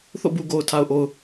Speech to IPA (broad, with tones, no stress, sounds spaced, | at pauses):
θ o̰˦˨ b u˨ ɡ o˨ ʊ̯ tʰ a˨ ʊ̯ ʔ o˨ ʊ̯